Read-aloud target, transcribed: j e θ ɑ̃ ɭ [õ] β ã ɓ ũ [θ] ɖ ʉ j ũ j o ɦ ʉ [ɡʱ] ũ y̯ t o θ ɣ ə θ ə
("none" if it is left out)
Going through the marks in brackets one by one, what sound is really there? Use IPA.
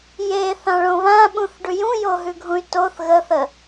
õ, θ, ɡʱ

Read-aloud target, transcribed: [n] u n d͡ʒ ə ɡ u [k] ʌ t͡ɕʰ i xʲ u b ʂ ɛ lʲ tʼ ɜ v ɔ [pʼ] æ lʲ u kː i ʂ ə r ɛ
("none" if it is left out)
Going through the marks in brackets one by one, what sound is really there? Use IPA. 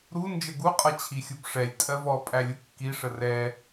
ɾ, qʼ, pʼ

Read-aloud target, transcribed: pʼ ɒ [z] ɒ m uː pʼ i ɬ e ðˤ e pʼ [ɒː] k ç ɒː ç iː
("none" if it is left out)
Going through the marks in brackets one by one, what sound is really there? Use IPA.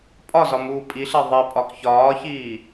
z, ɒ

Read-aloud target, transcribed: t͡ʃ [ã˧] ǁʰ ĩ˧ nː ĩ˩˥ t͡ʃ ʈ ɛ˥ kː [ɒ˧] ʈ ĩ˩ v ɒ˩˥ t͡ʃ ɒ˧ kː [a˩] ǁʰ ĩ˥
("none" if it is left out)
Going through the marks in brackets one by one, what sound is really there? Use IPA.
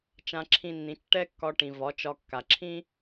ã˧, ɒ˧, a˩

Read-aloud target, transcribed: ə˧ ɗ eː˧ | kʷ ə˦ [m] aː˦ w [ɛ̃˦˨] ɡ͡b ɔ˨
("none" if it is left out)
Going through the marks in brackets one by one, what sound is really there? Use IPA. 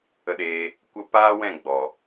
p, ɛ̃˦˨

